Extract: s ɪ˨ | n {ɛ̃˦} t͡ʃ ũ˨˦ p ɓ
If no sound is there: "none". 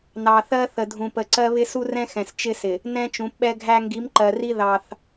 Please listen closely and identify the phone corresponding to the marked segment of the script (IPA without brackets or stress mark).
ɛ̃˦